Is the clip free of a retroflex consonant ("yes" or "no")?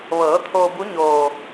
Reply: yes